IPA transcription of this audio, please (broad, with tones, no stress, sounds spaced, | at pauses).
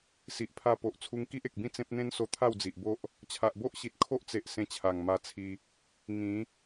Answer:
s i˨ ʔ pʰ a˧ p o˨ ʔ t͡sʰ u˧ ŋ k i˦ ʔ e˨ k̚ b ĩ˥˧ t͡s ẽ˦ p̚ n̪ ẽ˦ n s o˧ t̪ʰ a˥˧ w d͡z i˨ ʔ b o˦ ʔ | t͡ɕʰ a˨ ʔ b o˦ ʔ ɕ i˨ t̚ kʰ o˦ ʔ t͡s e˨ ʔ s ẽ˧ t͡ɕʰ a˨˩ ŋ m a˧ t͡sʰ i˧ | ŋ ĩ˨˦